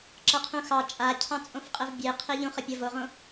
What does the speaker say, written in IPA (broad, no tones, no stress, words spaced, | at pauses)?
ǁʌqʰũxɑ t͡ʃʼacʰɑ̃t͡sʼõfqʼəv bʲe qʰeʎũχə pʲʌvoʁõ